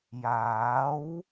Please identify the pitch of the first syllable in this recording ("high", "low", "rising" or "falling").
rising